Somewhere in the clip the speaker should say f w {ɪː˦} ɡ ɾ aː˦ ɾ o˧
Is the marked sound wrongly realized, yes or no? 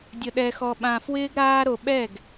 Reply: no